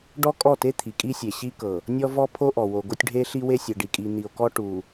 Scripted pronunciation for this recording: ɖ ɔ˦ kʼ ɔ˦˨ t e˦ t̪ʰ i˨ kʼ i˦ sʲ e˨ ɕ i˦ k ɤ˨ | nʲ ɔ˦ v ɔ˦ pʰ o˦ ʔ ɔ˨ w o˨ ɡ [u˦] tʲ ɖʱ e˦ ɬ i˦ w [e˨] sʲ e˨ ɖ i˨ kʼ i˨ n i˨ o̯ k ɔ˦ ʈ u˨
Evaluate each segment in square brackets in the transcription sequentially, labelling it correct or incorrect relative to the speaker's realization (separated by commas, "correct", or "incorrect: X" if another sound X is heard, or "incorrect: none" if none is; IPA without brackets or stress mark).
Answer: incorrect: o˦, incorrect: e˦